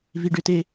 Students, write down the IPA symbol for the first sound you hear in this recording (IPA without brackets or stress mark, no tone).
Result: v